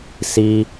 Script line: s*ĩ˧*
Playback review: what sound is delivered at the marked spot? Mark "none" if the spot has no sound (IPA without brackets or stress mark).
i˧